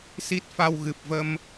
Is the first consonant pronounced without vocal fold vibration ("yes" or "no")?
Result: yes